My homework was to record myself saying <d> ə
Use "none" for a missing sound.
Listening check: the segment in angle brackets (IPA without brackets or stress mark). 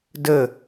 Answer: d